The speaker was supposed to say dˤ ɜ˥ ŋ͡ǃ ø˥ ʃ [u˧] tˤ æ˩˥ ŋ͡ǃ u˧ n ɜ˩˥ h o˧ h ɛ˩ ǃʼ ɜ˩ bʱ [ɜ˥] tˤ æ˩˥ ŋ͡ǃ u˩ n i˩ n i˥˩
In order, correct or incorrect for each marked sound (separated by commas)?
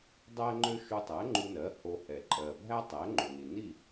correct, incorrect